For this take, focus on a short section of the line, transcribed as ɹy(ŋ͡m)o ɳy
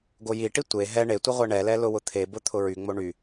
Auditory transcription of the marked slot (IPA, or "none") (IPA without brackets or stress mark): ŋ͡m